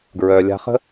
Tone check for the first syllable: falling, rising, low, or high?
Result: low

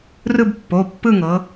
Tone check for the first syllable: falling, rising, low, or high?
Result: falling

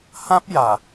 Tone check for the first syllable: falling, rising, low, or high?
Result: high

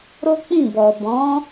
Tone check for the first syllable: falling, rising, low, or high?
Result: high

